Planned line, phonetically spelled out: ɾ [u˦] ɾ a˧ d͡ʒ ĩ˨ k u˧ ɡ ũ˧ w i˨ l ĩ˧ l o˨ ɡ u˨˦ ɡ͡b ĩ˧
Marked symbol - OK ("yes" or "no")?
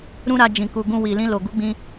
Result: no